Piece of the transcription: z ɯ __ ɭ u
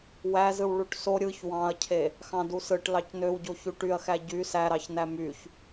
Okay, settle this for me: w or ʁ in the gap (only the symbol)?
w